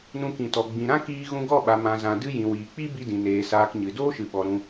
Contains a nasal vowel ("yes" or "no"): yes